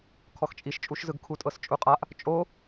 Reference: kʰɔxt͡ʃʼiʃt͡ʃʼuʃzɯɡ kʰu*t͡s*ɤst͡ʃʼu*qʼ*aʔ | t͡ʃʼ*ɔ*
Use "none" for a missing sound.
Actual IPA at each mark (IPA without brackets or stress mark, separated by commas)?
tʼ, qʼ, o